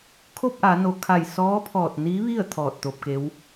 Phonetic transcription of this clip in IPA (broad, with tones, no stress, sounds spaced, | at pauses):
kʰ o˥˨ p̚ ʔ a˩˧ n o˩˧ kʰ a˧˩ j s ɔː˧˥ pʰ ɔː˧˩ t̚ n i˧˥ ʋ i˥˨ ə̯ t̪ʰ ɔː˧˩ t̚ t̪ o˧ p̚ k e˧˥ w